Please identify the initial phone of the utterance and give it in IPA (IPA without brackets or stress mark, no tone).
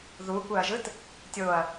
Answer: ð